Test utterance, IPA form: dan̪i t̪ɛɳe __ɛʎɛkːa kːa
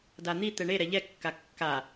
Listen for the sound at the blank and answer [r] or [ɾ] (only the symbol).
ɾ